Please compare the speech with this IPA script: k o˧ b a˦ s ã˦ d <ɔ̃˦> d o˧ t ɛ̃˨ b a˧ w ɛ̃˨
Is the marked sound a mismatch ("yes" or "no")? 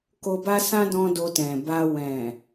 no